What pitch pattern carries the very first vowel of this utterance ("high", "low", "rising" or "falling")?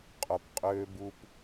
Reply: low